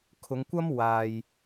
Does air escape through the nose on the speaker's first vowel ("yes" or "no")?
no